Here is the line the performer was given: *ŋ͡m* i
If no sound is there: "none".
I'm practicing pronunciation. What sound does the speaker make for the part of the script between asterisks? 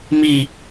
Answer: m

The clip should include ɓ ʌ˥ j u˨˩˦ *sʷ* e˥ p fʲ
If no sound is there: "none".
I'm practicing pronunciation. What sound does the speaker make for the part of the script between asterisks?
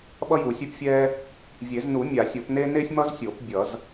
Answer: sʲ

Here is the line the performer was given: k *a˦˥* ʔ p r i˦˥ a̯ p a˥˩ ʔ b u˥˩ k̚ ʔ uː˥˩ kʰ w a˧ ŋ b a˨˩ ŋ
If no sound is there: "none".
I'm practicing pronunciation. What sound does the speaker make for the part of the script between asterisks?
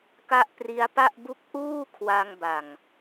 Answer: a˦˥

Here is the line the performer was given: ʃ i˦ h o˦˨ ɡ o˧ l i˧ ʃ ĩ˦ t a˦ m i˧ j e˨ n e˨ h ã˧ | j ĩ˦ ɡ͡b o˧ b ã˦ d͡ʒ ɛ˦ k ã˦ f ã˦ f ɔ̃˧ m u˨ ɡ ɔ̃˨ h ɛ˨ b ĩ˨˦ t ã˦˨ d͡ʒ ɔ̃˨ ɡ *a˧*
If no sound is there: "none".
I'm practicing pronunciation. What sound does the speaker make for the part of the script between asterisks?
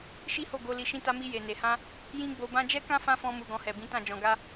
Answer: a˧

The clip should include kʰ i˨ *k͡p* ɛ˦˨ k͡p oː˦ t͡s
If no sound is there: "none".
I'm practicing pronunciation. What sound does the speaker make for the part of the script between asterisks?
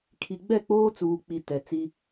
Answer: ɡ͡b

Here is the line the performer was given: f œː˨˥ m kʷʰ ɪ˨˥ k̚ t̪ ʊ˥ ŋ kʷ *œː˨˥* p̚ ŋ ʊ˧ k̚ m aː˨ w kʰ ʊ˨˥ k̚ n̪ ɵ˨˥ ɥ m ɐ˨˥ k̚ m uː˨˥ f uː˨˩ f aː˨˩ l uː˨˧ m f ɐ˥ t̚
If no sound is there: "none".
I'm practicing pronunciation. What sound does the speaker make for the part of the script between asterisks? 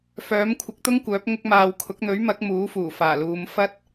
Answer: œː˨˥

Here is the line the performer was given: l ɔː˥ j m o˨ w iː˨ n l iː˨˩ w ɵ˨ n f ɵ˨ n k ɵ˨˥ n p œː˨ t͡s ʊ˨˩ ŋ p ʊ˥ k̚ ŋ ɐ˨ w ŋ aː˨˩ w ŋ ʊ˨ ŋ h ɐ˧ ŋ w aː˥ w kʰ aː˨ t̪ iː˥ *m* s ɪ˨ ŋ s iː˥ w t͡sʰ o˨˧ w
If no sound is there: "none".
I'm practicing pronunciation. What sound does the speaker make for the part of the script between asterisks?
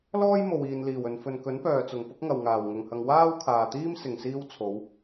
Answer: m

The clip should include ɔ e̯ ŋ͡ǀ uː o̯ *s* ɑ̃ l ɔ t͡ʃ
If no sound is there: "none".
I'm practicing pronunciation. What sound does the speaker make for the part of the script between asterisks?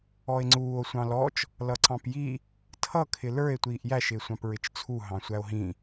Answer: sʷ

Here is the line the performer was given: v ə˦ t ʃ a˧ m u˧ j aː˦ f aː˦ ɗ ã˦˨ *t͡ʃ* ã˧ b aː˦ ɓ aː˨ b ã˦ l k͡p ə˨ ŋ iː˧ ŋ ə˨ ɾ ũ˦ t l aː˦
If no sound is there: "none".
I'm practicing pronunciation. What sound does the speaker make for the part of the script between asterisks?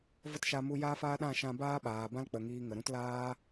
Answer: ʃ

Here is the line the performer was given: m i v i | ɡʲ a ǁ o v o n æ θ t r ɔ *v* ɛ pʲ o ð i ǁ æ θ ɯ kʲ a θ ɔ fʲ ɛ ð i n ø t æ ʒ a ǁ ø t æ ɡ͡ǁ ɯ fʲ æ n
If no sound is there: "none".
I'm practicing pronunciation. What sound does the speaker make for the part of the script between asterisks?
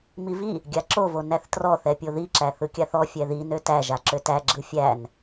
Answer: θ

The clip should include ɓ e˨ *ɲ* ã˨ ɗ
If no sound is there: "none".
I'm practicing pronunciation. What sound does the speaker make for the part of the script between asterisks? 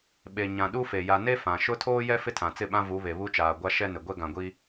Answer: ɲ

